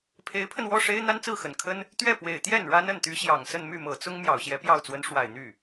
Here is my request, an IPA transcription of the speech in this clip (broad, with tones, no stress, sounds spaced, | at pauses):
pʰ e˧˥ ɪ̯ pʰ ə˧ n w ɔ˥˩ ʂ e˥ ɪ̯ n̪ a˥ n t͡s ɹ̩˥˩ x ə˨˩ n kʰ ə˥ n | t̪ ɥ ɛ˥˩ p w e˨˩ ɪ̯ t̪ j ɛ˥˩ n ɻ a˥ n ə˥˩ n t̪ y˧˥ ɕ j ɑ˨˩ ŋ s ə˥˧ n m y˥˩ m ɤ˨˩ t͡s ʊ˥ ŋ m j ɑ˨˩ ʊ̯ ɕ j ɛ˧˥ p j ɑ˥˩ ʊ̯ t͡s w ə˧˥ n ʂ w a˨˩ ɪ̯ n̪ y˥˩